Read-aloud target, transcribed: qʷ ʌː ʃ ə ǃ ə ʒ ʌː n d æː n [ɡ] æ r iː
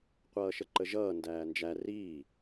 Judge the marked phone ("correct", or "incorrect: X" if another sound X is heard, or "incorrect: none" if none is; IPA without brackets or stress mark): incorrect: d͡ʒ